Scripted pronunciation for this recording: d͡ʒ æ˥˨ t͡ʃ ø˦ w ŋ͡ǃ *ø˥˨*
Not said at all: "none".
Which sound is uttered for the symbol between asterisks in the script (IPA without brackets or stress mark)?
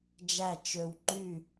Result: y˥˨